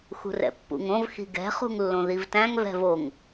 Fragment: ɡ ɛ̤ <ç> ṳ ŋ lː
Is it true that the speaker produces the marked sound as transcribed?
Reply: no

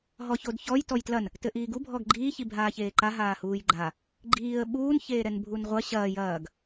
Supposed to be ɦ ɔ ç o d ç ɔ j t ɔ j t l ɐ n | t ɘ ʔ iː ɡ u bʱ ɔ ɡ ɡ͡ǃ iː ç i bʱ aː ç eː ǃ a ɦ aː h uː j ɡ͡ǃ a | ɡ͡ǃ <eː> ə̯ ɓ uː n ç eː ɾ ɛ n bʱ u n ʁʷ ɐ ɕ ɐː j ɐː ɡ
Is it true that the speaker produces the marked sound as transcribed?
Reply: no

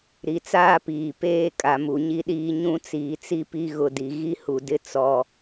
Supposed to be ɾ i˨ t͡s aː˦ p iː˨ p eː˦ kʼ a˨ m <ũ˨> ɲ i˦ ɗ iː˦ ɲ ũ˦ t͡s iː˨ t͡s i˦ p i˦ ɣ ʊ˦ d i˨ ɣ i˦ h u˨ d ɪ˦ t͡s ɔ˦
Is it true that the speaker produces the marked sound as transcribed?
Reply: no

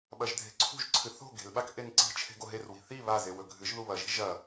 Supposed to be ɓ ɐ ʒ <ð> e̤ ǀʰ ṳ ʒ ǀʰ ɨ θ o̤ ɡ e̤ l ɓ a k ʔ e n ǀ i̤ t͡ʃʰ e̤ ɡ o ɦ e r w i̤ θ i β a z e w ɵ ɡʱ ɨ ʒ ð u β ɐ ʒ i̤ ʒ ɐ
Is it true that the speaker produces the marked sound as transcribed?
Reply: no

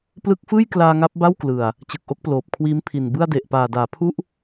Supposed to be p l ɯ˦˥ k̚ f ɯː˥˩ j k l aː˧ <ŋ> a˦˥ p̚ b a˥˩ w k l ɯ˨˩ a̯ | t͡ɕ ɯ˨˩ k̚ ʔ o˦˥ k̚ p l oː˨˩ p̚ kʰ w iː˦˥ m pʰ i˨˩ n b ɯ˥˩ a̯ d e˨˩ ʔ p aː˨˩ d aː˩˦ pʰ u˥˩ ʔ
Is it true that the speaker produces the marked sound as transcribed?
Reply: yes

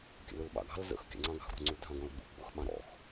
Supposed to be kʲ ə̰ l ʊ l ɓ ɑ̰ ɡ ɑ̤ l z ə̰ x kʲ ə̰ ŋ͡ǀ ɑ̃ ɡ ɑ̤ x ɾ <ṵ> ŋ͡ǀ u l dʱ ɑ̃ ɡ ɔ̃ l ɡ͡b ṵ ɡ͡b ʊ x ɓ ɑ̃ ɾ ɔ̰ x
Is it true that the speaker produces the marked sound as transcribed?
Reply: no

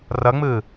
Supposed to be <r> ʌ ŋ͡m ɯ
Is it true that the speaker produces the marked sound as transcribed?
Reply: yes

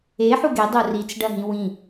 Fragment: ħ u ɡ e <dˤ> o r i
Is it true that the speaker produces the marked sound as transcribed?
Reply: yes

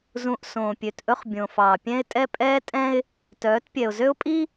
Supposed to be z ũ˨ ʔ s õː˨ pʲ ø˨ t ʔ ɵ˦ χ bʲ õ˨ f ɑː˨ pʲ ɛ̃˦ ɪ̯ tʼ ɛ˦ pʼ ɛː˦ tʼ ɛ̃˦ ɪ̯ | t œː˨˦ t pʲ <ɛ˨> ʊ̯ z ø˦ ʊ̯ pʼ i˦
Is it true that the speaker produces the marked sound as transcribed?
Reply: yes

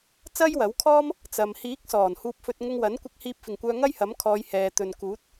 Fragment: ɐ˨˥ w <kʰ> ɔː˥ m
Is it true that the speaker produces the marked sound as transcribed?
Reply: yes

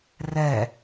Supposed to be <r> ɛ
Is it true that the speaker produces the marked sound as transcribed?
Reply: yes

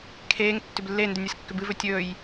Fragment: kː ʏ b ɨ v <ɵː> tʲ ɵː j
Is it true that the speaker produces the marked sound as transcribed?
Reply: no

